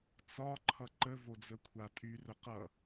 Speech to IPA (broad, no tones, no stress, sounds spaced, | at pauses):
t͡s ɒ ǃʰ ʌ ǃ ə v o d͡z ə kʷʰ a tʼ y r ə q ʌ